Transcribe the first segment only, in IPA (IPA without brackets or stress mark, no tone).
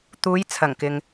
t̪